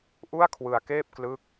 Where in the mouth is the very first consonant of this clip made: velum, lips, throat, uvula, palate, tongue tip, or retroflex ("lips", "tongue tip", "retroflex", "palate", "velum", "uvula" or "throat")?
throat